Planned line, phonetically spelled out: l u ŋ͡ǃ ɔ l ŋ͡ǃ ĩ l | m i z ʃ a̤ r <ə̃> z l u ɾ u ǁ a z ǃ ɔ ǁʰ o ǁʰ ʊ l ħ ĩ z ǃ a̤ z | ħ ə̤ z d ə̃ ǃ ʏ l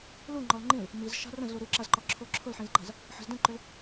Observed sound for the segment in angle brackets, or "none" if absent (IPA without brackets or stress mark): ə̃